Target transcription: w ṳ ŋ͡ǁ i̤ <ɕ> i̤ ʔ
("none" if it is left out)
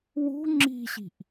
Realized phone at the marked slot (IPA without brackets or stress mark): ɕ